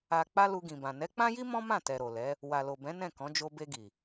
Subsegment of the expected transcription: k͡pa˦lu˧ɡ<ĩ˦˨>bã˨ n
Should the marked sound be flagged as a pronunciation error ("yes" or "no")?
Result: yes